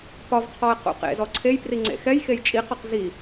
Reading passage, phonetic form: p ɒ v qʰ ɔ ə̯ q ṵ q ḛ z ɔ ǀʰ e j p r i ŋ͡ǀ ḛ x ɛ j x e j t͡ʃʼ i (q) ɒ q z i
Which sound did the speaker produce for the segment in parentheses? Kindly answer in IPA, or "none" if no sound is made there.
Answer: q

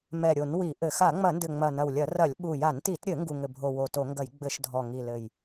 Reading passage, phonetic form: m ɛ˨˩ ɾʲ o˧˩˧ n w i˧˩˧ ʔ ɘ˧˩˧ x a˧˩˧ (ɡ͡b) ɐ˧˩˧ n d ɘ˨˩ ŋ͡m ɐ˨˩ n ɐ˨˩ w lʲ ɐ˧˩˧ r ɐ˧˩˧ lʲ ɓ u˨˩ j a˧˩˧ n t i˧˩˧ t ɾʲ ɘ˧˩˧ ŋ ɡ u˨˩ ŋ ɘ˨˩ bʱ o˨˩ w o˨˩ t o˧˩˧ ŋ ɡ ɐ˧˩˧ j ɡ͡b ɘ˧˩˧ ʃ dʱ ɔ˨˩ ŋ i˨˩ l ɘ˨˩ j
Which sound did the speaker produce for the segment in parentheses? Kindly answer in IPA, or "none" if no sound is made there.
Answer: ŋ͡m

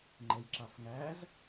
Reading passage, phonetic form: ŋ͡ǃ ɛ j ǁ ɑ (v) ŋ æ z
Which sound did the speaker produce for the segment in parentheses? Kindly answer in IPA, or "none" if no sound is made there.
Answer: f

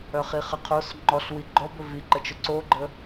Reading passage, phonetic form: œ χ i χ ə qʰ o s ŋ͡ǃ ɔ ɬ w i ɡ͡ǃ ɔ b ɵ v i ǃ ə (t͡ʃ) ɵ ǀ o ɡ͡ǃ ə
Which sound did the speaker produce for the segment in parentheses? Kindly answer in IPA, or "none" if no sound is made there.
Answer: t͡ʃ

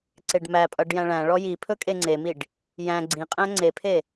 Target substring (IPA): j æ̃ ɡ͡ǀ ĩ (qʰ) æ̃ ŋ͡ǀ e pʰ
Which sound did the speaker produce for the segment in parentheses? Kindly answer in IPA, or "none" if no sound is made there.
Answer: qʼ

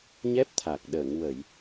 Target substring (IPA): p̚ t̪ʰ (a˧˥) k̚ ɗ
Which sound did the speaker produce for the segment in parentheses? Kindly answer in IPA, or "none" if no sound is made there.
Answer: a˨˩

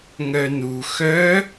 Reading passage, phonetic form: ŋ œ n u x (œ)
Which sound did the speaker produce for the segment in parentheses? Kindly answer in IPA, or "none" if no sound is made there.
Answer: œ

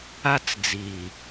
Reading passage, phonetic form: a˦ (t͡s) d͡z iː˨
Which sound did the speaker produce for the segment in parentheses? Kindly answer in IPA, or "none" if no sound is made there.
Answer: t͡s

